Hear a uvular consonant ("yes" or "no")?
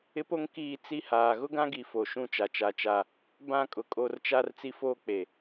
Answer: no